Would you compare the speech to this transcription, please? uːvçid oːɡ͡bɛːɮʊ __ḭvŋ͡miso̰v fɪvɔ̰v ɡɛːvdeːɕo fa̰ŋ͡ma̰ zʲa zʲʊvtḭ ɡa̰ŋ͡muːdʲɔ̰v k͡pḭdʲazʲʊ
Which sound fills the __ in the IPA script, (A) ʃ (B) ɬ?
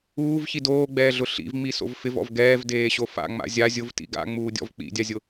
B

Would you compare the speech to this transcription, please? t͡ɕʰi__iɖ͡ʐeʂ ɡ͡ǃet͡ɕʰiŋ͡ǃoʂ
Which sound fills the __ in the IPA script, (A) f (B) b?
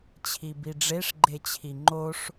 B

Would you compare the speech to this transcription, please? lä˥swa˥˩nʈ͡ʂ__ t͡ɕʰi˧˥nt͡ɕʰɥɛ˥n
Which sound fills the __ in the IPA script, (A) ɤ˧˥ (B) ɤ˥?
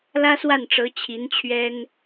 A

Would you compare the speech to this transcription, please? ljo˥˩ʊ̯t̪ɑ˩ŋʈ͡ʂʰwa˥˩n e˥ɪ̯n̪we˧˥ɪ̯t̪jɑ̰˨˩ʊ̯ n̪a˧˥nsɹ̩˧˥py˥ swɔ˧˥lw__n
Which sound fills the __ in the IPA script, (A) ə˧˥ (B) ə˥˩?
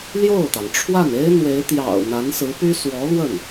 B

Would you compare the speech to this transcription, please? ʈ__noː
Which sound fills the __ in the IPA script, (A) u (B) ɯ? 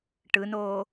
B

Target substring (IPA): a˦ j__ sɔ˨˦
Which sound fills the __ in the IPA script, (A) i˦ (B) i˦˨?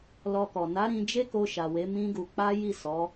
B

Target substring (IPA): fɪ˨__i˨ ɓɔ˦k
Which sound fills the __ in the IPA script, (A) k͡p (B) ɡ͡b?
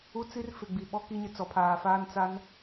B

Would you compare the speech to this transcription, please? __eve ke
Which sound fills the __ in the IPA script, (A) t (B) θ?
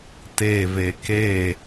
A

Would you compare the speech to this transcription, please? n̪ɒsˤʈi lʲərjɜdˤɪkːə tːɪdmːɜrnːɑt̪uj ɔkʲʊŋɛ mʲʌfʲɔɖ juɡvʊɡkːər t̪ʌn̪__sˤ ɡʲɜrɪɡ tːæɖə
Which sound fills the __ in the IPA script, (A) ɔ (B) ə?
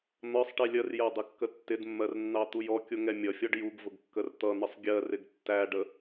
B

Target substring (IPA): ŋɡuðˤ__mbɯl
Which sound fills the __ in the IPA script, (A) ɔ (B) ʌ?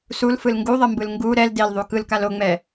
B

